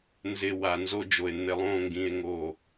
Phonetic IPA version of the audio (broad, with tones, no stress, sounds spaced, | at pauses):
n z ɪ˨ w a˨ n z o˦ d͡ʒ o˨ e̯ n̪ ɪ˨ lˠ õ˦˨ ŋ ɡ ĩ˨ e̯ ŋ o˨